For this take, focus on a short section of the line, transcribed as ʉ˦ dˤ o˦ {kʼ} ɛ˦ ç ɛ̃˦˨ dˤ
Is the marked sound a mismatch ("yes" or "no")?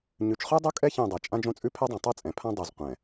no